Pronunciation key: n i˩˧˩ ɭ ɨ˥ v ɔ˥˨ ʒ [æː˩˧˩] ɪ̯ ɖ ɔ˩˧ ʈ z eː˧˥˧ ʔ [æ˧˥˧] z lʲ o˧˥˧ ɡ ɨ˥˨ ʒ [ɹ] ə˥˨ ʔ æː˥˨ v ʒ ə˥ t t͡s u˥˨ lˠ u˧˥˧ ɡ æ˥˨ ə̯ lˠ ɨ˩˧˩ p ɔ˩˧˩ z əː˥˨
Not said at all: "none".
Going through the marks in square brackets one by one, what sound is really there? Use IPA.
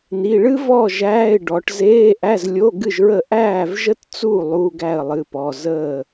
æː˧˥˧, æ˧˥˧, ɹ

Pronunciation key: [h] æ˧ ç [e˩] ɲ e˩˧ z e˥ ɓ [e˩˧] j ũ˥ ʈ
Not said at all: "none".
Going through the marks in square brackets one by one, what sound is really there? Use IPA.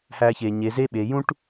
h, e˩, e˩˧

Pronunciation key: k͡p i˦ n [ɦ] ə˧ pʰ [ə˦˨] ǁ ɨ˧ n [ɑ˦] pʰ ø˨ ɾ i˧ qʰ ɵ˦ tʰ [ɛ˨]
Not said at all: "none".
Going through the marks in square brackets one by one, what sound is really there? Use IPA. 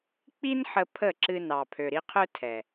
ħ, ə˦˨, ɑ˨, ɛ˨

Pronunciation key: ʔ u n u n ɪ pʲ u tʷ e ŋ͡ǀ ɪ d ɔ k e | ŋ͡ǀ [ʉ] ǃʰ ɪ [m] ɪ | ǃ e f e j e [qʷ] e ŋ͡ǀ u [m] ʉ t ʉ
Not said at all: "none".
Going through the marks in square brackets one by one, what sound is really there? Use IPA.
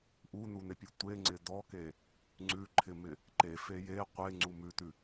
ʉ, m, qʷ, m

